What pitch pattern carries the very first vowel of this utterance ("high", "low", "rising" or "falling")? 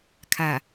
low